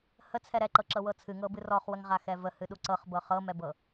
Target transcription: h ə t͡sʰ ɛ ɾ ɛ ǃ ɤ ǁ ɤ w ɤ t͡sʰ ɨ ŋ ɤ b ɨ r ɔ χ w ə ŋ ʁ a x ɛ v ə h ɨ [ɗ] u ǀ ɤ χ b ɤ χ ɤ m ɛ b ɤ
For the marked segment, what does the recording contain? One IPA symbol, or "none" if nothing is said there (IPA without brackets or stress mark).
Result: ɗ